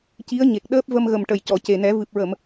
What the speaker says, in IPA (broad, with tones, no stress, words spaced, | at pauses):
ci˧˥ə̯ɲe˨˩k̚ ɗəː˦˥p̚ və˧mɣə˨˩mʈə˨˩˨j cɔ˨˩˨ce˨˩nɛ˨˩˦ vɨ˨˩p̚ɹə˨˩˨m